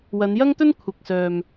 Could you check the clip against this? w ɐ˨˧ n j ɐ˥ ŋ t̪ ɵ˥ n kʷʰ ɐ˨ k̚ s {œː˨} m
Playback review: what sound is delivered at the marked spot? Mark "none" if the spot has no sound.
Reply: œː˨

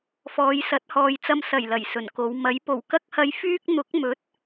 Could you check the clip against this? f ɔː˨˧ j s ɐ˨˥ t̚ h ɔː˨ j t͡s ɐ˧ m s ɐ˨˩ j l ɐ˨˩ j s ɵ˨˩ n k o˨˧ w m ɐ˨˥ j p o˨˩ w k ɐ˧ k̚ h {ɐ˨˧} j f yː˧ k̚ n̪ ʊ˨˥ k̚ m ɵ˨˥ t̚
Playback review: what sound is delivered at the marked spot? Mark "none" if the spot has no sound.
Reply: ɐ˨˧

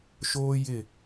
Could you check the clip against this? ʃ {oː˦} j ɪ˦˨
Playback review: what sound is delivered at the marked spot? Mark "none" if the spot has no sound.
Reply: oː˦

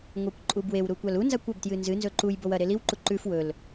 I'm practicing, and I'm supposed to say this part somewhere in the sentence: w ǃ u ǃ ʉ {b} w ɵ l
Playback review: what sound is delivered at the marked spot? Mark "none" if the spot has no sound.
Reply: f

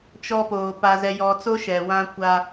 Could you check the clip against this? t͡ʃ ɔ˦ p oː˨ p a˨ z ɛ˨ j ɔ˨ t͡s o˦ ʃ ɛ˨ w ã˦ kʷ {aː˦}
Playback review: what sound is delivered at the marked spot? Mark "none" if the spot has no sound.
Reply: a˦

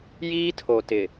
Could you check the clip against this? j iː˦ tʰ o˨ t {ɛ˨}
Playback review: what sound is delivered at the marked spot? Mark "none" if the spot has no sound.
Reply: ɪ˨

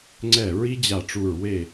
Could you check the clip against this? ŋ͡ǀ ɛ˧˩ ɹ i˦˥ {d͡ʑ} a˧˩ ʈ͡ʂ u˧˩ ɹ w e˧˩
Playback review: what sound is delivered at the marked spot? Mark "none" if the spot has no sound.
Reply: d͡ʑ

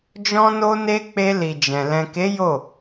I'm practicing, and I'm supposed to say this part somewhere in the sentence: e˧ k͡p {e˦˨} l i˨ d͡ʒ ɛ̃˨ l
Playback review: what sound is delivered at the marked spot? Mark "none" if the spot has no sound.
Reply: e˧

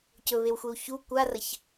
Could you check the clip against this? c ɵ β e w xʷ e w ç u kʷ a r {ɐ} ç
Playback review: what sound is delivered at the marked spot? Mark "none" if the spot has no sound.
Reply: ɐ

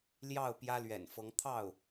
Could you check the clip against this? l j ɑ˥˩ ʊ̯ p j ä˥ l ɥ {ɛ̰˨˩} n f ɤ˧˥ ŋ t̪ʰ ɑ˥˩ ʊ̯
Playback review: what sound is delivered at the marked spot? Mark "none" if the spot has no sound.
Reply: ɛ̰˨˩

